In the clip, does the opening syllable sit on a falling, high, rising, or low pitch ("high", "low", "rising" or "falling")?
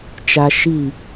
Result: low